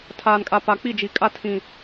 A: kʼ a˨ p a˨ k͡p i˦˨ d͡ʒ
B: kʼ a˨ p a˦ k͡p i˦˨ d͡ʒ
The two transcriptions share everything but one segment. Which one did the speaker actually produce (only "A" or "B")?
A